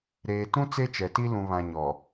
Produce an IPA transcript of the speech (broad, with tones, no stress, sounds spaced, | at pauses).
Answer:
ɾ eː˨ t ũ˦ t͡s e˦ t͡ʃ ɛ˨ t i˦ l ũ˨ β ã˨ ɲ ɔ˨